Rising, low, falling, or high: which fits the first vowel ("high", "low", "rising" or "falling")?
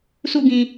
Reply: falling